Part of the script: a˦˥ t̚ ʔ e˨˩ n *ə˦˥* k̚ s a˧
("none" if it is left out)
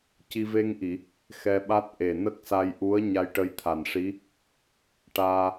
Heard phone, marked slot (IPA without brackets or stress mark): ə˦˥